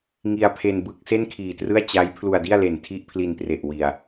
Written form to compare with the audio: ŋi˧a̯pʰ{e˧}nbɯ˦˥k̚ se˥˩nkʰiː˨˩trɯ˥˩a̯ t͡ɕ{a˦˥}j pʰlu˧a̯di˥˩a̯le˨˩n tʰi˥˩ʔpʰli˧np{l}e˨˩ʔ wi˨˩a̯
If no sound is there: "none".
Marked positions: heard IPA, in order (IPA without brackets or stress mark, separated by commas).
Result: e˧, a˦˥, r